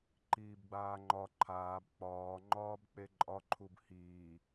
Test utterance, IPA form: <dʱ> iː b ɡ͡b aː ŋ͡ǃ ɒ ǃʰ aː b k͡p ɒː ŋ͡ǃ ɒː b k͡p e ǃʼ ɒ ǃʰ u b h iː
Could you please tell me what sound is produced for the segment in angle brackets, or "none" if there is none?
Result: ǃ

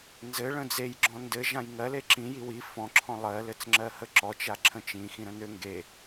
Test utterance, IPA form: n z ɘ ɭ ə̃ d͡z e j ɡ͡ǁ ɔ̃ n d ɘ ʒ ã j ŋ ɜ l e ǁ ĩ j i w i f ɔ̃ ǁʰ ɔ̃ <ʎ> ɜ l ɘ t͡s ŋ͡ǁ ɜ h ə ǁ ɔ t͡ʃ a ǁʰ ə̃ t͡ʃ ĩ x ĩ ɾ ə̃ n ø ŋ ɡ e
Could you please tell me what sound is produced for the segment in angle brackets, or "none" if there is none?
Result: lˠ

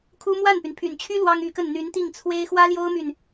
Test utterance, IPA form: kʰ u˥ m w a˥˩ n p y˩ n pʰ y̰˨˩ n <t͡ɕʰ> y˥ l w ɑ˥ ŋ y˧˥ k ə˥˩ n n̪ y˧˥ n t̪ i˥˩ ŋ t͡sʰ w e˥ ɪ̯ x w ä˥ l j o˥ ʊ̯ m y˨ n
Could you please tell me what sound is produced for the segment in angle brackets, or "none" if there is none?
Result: t͡ɕʰ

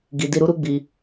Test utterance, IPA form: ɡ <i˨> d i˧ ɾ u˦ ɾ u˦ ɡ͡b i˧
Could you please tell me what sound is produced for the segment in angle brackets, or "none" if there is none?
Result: i˨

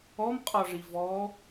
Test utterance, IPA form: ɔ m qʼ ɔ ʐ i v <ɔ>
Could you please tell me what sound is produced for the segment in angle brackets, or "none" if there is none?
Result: ɔ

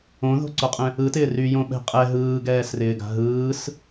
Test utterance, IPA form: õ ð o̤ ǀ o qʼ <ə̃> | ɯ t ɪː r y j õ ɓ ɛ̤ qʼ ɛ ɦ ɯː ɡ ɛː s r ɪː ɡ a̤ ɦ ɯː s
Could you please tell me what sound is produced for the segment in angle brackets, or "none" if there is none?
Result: ɛ̃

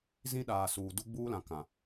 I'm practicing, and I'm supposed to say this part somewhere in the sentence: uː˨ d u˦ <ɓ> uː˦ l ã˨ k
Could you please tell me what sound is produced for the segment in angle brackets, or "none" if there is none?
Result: ɡ͡b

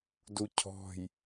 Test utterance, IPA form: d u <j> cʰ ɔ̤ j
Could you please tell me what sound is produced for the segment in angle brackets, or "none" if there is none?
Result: none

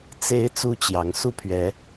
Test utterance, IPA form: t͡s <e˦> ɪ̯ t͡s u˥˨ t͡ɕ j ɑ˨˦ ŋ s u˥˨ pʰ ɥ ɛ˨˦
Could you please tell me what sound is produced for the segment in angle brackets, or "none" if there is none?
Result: e˨˦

